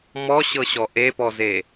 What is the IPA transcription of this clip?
m ɔ ɕ ɤ ɕ ɔ ʔ e p ɔ z e

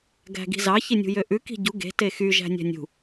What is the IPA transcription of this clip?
ɡ æ̤ ɡ i̤ z ɑ ç i nʲ ṳ j ø ʔ ʉ k i̤ ɟ u ɡ e̤ t e x y ʒ æ̤ nʲ æ̤ nʲ ṳ

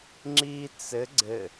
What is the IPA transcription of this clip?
ŋ͡ǁ i t͡s ɘ ɡ͡ǀ ɘ

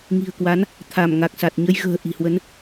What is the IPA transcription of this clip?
ŋ i̤˨˩ ə̯ k w a˨˦ n | t̪ʰ a˧˩ m ŋ a˨˩ k̚ s a˨˩ t̚ ɲ ə˧ j ɣ ə̤ː˨˩ ʔ i̤˨˩ h w ə˨˦ n

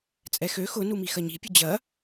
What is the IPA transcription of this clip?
t͡sʼ ɛ x ø x ʊ n u m i x ɐ ɲ i̤ pʲ ʊ d͡ʑ ɐ

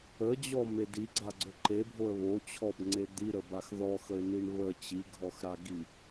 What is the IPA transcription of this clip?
ə d͡ʑ ɔ m e d i ɡ͡ǀ a ɡ͡ǀ ɵ ǃ e bʱ o ə̯ β o t͡ɕʰ ɔ b ŋ͡ǀ e d̪ i ɾ ə b a x ð ɔ x ə ɪ̯ n i ɳ β ə t͡ɕ i ɡʱ ɔ x ɾ a ɡ i

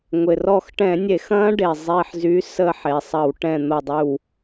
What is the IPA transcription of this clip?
ŋʷ ɪ˩ r ɔ˧˩ x ʈ ɛ̃˧˩˧ nʲ e˧˩˧ x ɐ̃ː˦˥ ɖ e˩ zˤ e˧˩ ħ z y˨˥ s ə˧˩ ħ e˩ sˤ ɐ˧˩˧ w ʈ ɛ̃˧˩ n̪ o˧˩ dˤ y˧˩ w

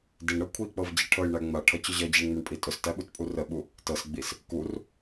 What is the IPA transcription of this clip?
d i ɳ ɾ ɤ kʷʰ i k͡p ɤ v d͡ʑ i ʈʰ ɤ j ɳ æ ŋ͡m a ʈʰ ʌ t͡ɕ ʊ ʑ ʌ d͡ʑ æ ɳ ŋ͡m u ɳ pʼ i tʼ ʊ s t æ ɓ u t pʼ u r ə ɓ u | t ɤ s ɡ͡b i s | k u r

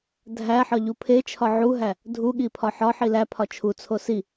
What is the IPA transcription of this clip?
dʱ æ ħ ɒ ʎ u pʰ e t͡ʃʰ ɒ ʕ u ɦ æ | dʱ u ɠ i pʰ ɒ ħ ɒ ħ i l æ pʰ ɒ t͡ʃʰ u t͡sʰ o s i

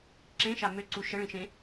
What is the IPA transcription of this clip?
ǁ ẽ ʃ a m ø ǀ u ʃ ə ɭ ĩ ʃ ẽ

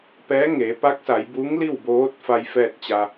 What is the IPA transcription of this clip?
p ɛː˧˥ ŋ e˩˧ p a˧˥ k̚ s a˩˧ j b u˧˥ ŋ l i˥˨ w b oː˧˥ t̚ f a˧ j f ɛː˥˨ t̚ t͡ɕ a˧

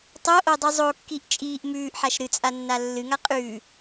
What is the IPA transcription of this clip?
tˤ o ʔ o dˤ ɨ zˤ o kː i ʔ t͡ʃʼ iː ʔ m ʉː ʔ ħ a ʃ ɾ ɨ t͡sʼ a nː a lː ɨ ŋ a qʼ ʉː

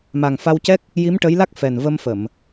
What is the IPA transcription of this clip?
m a˨˩ ŋ f a˧ w c ɛ˦˥ k̚ | j i˧˥ m ʈ ə˧˥ j l a˦˥ k̚ f ɛ˨˩ n v ə˧ m f ə˨˩˨ m

